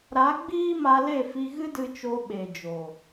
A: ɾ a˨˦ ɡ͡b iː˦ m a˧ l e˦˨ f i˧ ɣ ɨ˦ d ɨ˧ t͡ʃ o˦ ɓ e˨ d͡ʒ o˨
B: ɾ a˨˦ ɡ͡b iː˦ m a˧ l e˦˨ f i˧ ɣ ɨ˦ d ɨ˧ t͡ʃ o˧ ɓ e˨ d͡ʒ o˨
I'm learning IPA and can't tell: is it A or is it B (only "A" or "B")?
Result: B